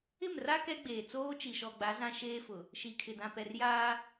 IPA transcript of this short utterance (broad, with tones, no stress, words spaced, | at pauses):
ɪ˦˨mra˦ kɛ˦ ɡ͡beː˨t͡soː˦ t͡ʃi˨ʃɔ˨ɡ͡ba˨˦ zã˦ʃeː˦fʊ˨ | ʃi˨kʰɪ˨ dã˨pɛ˨r jaː˦